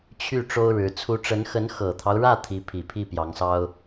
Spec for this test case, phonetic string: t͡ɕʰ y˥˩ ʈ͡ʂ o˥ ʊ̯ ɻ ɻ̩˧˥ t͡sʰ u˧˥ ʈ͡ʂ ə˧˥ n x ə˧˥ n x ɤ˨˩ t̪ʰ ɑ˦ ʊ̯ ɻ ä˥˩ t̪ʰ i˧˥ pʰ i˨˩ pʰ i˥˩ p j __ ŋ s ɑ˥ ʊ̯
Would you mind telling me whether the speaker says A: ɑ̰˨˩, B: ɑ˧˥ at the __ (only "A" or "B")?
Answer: B